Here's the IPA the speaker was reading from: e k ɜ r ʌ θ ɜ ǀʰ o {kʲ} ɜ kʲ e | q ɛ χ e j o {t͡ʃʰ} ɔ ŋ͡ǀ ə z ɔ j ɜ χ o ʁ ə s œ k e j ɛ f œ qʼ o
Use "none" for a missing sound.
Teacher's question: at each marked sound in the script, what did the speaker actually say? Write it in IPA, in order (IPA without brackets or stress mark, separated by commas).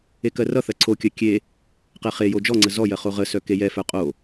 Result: kʲ, d͡ʒ